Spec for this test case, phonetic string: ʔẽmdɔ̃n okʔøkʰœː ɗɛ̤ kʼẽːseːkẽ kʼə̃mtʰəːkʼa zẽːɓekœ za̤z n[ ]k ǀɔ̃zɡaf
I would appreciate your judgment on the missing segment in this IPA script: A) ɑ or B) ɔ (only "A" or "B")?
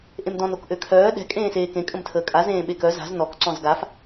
B